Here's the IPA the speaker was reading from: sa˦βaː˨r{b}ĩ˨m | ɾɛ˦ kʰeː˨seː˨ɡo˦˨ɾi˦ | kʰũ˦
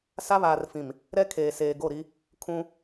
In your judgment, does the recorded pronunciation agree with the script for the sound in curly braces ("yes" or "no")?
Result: no